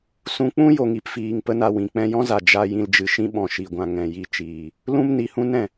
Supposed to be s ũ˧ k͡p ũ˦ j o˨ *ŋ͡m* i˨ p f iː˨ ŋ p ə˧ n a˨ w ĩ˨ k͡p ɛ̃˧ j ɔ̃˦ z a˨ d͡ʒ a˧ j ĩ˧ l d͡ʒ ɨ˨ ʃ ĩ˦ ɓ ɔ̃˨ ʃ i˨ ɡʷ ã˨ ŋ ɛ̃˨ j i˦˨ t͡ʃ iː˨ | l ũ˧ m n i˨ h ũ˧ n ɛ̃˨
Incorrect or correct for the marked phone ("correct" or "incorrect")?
incorrect